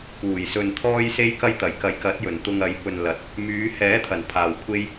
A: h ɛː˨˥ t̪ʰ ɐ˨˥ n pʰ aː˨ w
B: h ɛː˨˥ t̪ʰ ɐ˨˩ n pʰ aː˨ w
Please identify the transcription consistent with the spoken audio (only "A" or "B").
B